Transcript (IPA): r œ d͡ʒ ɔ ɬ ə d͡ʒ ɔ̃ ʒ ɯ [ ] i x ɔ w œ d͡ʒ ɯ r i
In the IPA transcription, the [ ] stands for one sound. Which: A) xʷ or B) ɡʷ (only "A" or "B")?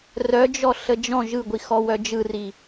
B